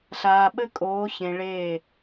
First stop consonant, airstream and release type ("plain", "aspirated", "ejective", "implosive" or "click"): implosive